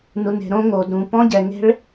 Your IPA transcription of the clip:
nu˩ne̤˩ ɾõ˦˥ŋo˩d ɾũ˩pɔ̃˦˥ɟɛ˩ŋe̤˦˥ɭ

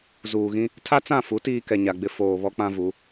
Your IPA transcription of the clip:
zuː˨ɣĩ˦ | tʰa˦t͡sã˦˨fu˨˦ tiː˦kɛ˨ɲa˨ɡ͡bɪ˦ foː˨ βɔ˦k͡pã˦vu˨˦

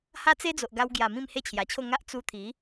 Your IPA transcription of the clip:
ha˦t͡se˦d͡zo˨ʔɡa˧w ɡja˨˩ mĩ˥˧mhe˦t͡ɕʰja˨˩t͡ɕʰo˥˧ ŋa˦ʔ t͡su˧ t̪ʰi˨˦

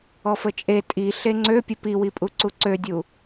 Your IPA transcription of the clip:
ɔfət͡ʃʼe tʼi ɬeŋ͡ǀøpʲə piwipʼu ǀuǀødʲu

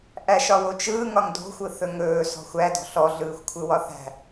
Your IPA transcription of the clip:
ʔæʃɒwot͡ʃɯː ŋɒŋdo̤xʷɯ θɵŋɵː sɔ̤xʷædɔ̤ ɬɔɮɯːxʷ kʷʰɯwɒθæ̤

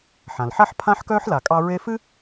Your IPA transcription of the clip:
ħã˩lħa˥ħ pʰã˥ħkœː˥ħla˨kʼɑ˦ ɹe˥ fɨ˥

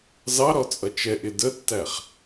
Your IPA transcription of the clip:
zɑɾɔt͡sʼʌ t͡ʃɛʔɪ dətːæχ

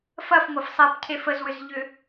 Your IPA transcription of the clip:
fɐfŋʷɐf sˤɛpcʰef əzwʏzʎʏ

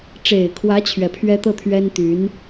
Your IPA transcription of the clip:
ʈ͡ʂe˨˩ɪ̯kʰwä˧˥ t͡ɕʰɥɛ˨˩pʰɥɛ˥ t̪ɤ˥˩ t̪ʰɥɛ˥nt̪y˧˥n

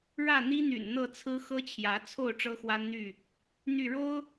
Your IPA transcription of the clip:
ɻä˥˨n̪i˦n̪y̰˨˩n n̪ɤ˥˨t͡sʰɹ̩˦ xɤ˦t͡ɕʰjä˨˦t͡sʰo˥˨ʊ̯ ʈ͡ʂɤ˦xwa˦nn̪y˥˨ | n̪y˥˨ ɻo˦ʊ̯

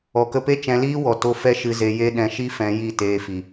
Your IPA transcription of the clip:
ɔ˨kə˧pe˦ t͡ʃɛ̃˧liː˦wɔ˨to˧ fɛ˦ ʃɨ˧ ze˧je˦ ɗɛ̃˧ʃi˦fɛ̃˧ ji˦˨teː˧fi˨

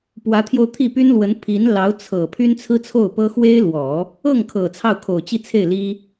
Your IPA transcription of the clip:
pwä˧˥t̪ʰjo˧ʊ̯t̪ʰi˥˩py˥n lwə˧˥n pʰi˧˥n lɑ˧˥ʊ̯t͡sʰɤ˨˩ pʰy˥nt͡sʰɹ̩˥t͡sʰo˥˩ʊ̯pɤ˥ xwe˥ɪ̯lwɔ˨˩˦ | ɤ˥˩ŋkʰɤ˨˩ t͡sʰɑ˥˩ʊ̯kʰo˨˩ʊ̯t͡ɕi˥˧t͡sʰe˥˩ɪ̯ li˥

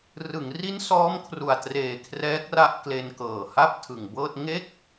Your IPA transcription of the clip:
rɯ˩˦ŋri˦˥n sɔː˦˥mkʰru˨˩a̯treː˨˩ kʰrɛː˦˥k̚ra˥˩ʔ kle˧nkɤː˨˩ha˥˩p̚ tʰɯ˨˩ŋbɤː˥˩t̚ ŋe˥˩k̚

